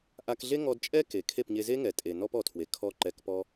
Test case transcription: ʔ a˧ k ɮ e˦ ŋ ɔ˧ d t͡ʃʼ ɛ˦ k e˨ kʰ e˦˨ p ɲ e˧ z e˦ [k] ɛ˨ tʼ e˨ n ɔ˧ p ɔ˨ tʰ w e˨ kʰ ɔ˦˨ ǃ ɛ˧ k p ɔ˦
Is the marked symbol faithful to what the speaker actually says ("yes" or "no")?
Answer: no